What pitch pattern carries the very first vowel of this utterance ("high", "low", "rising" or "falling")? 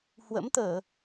rising